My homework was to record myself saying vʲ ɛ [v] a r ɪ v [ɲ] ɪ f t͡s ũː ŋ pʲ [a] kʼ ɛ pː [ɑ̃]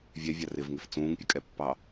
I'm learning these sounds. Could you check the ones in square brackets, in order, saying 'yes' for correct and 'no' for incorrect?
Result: no, no, no, no

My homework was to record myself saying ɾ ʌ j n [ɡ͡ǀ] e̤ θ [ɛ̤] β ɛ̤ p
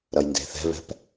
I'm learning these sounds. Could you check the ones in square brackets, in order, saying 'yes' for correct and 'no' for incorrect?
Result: no, yes

